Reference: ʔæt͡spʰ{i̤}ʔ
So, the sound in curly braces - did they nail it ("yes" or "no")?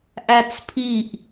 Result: no